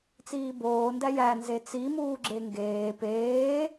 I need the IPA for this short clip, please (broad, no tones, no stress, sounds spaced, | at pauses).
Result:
t͡s iː b oː n d æ j æ n z e t͡s i m uː ɡ͡ǁ e ŋ ɡ eː p eː